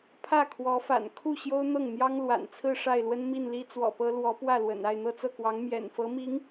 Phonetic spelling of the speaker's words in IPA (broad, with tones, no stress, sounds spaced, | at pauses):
pʰ ä˥˩ kʰ w ɔ˧˥ f a̰˨˩ n kʰ u˥˩ ɕ j o˥ ʊ̯ n̪ ɤ˥˩ ŋ n̪ j ɑ˥ ŋ l w a̰˨˩ n t͡sʰ ɹ̩˥˧ ʂ a˥˩ ɪ̯ l w ə˥ n m i˥˩ n l i˥ t͡s w ɔ̰˨˩ p ɤ˥ l w ɔ˧˥ p w ä˥˩ l w ə̰˨˩ n a˥˧ ɪ̯ n̪ ɤ˥˧ t͡s ɤ˥˩ k w ɑ˧˥ ŋ m j ɛ̰˨˩ n f ɤ˧˥ m i˧˥ ŋ